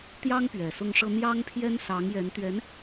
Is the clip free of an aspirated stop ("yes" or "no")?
no